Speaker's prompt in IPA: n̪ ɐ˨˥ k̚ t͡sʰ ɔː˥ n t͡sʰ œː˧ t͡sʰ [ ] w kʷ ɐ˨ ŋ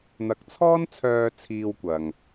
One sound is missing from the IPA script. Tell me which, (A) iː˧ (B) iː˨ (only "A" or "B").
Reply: A